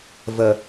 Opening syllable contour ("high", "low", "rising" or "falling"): low